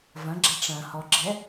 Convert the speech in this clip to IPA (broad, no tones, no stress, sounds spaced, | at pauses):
v ɐ̃ ɡ͡ǁ a ʈ͡ʂ ɐ̃ h ɔ ɡ͡ǁ ɛ